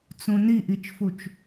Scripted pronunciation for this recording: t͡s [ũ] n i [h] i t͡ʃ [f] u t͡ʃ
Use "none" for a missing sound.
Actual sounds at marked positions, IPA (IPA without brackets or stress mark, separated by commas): ũ, ʔ, f